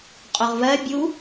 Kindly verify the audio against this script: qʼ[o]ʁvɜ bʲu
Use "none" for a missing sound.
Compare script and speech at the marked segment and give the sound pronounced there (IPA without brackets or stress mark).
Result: o